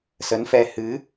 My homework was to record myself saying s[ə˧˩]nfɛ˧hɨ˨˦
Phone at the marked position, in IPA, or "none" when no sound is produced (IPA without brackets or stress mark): ə˨˦